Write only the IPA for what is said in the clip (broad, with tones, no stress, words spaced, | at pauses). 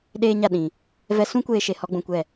ɗeː˦ɲa˦˨ ɗĩ˨ | vɛ˦ sũ˦kʷeː˧ʃe˨ hɔ˦ɡ͡bũ˧kʷɛ˦˨